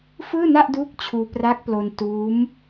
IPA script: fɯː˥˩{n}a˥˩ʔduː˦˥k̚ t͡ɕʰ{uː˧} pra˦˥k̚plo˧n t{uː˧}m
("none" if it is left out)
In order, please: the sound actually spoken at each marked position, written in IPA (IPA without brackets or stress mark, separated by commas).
n, uː˧, uː˦˥